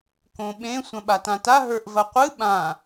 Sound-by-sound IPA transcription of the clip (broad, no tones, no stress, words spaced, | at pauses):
kõɓẽ sʷɐ̃ɓatãta ɦə˞ʔvɐqʷɨ ɓã